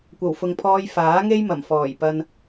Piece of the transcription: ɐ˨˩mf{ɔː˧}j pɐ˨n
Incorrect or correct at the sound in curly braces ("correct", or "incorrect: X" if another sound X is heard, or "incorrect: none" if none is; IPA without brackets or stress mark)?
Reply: incorrect: ɔː˨˩